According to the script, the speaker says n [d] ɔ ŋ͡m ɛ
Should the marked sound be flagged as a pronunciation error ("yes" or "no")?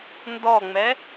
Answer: no